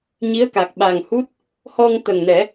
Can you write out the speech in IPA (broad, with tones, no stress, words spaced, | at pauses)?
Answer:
ɲi˧˥ə̯ka˨˩k̚ ɓa˨˩ŋhu˦˥t̚ | hɔ˧ŋt̪ə˨˩ŋnɛ˨˩˦